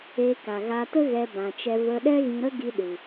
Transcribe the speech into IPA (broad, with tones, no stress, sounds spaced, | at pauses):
e˧ k a˨ ɣ a˧ t ə˦ ɣ ɛ˧ b ã˨ t͡ʃ ɛ˧ v ə˧ ɗ ɛ˦ ɣ ĩ˧ ɾ ə˦ ɡ i˧ ɗ ɨ˨